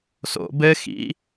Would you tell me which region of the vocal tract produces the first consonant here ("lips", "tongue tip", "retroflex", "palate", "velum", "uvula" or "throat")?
tongue tip